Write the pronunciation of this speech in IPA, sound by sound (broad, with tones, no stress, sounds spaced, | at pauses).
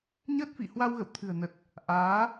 ɲ əː˦˥ t̚ f ḭ˧˨ h w a˧ w ɣ ə̰˧˨ w t̪ʰ ɨ̤˨˩ ə̯ n ə˨˩ t̚ | ʔ aː˨˦